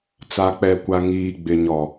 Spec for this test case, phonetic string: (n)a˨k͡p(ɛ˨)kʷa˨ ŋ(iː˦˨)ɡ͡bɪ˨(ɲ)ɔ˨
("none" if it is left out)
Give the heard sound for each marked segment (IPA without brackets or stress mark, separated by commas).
t͡s, ɛ˨, iː˨, ɲ